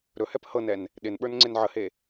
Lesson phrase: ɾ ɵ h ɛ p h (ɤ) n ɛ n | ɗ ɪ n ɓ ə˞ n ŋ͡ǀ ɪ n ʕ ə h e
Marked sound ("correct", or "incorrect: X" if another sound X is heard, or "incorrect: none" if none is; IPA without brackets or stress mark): correct